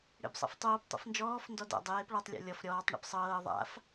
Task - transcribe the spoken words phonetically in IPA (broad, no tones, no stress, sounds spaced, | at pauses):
ɽ ḛ b sˤ a̰ f tˤ oː p tˤ o̰ f n d͡ʒ ɔː f n d ɔ d a̰ dˤ eː p ɭ a tˤ lʲ ɔ̰ lʲ ɔ f ɾʲ ɔː tˤ ɳ ḛ p sˤ ɤː ðˤ a̰ f